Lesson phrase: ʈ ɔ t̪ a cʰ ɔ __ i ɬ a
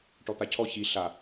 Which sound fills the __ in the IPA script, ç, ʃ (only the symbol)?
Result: ç